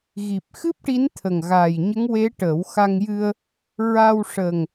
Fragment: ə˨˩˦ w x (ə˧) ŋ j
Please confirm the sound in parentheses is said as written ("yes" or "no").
no